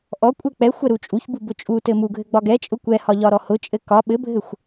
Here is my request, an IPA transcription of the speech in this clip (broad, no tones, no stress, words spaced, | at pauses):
ʔɔkʷʼɛ k͡pɛ xʷɛɾut͡ʃʼuçbu bʊt͡ʃʼutɘ muɡʱɘ ɡ͡bɒɡɛt͡ʃʼʊ kʷɛhɒ ʎɒɾɔhʊt͡ʃʼɘ kɒ ɓɘbʱɘxʷ